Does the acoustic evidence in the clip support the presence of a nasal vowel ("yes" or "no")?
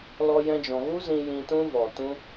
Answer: yes